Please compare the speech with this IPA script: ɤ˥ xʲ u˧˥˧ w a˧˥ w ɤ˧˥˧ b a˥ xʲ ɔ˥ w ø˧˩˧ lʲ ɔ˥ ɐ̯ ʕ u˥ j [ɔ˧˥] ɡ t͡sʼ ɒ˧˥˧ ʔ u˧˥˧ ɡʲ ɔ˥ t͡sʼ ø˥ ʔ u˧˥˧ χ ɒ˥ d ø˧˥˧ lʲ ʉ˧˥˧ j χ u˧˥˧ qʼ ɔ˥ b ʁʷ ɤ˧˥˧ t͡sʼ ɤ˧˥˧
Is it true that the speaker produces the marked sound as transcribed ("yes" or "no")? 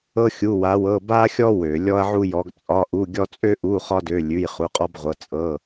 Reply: yes